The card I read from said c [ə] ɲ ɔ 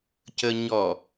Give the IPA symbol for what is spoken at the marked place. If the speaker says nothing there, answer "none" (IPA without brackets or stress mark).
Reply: ə